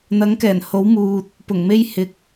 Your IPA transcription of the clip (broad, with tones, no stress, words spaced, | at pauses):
n̪ɐ˨˥ŋkɛː˨˩nho˨˥w muː˧t̚ | pʊ˨˩ŋme˥j hɪ˨k̚